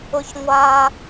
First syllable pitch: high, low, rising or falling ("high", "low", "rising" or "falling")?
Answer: low